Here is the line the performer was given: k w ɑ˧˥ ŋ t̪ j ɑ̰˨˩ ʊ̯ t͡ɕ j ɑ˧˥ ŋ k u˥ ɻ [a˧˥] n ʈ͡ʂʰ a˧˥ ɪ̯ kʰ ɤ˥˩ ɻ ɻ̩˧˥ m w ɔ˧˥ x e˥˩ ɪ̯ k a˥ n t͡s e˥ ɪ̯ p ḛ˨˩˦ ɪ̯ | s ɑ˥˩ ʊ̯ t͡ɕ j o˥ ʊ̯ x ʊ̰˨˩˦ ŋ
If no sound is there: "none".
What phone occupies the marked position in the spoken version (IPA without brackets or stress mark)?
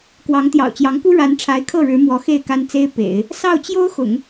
a˧˥